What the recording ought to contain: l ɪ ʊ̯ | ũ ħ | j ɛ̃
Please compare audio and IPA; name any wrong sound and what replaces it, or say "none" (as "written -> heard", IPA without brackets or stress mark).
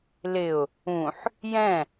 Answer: none